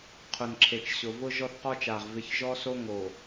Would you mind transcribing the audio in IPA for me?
qʰʊ˨nǁʰe˨t͡ʃɕʊ˨ vʊ˦ ʒɔ˦θqɔ˦t͡ʃa˨ʁ vɪ˨˦çʒɔ˦so˦ŋo˨

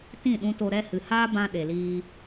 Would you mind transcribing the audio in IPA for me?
tĩ˦˨ɗũ˧to˧ ɾɛ˧ hɨ˨haː˦ bã˧ɗe˨liː˧

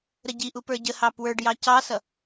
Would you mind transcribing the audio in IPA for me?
ɾəɟiʔu pə˞ɟəhɑ pwə˞ɖjɑ cɑsʌ

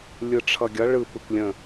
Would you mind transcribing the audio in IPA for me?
lʲɯʈ͡ʂʰʌɡʲʌ ɭɯ pɯkʷlʲə̃

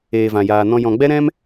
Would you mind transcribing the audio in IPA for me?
eː˨vã˨jaː˨nɔ̃˧ jɔ̃˨ɡ͡bɛ˦ɾɛ̃˦m

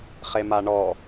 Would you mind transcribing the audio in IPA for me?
χemaɳɔ

